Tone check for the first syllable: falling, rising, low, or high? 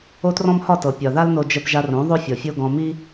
high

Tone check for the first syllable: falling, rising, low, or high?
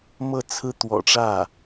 falling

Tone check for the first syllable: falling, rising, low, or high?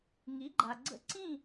rising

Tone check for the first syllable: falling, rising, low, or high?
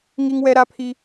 high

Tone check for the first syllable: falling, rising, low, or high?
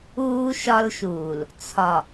high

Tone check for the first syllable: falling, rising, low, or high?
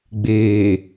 low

